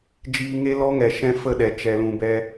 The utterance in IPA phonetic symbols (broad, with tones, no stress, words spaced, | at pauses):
d͡ʒiː˧ŋe˦lɔ˦ŋɛ˨ ʃɛ̃˦fə˦˨ɗɛ˨ t͡ʃɛ˨lũ˨ bɛ˧